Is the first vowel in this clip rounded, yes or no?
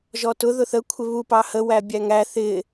yes